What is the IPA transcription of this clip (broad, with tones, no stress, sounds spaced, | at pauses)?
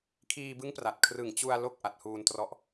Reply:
kʰ iː˧ b ɯ˦˥ ŋ p r a˨˩ t̚ kʰ r ɯ˨˩ ŋ t͡ɕ u˧ a̯ l o˥˩ k̚ ʔ a˨˩ t̚ h uː˧ n t r ɔ˦˥ ʔ